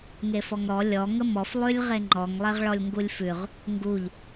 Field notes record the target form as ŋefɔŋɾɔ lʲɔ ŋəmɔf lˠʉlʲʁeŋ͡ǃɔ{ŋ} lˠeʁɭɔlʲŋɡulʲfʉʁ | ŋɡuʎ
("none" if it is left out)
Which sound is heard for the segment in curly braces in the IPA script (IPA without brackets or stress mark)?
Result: ŋ